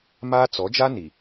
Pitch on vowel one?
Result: high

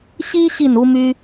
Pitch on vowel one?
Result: high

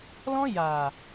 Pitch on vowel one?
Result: high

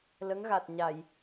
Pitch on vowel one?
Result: rising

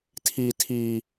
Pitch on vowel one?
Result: low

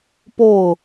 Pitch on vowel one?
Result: falling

